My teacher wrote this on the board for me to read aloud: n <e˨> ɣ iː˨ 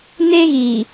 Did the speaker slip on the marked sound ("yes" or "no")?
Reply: yes